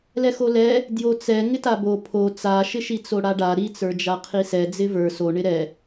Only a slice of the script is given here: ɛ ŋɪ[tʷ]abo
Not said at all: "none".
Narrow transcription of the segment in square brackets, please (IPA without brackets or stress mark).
t